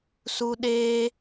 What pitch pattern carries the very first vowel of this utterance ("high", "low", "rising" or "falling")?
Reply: high